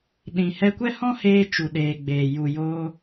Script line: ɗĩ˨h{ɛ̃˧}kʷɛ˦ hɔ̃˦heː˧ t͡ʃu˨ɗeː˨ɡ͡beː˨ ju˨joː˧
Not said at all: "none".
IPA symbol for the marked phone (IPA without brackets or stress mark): ɛ˧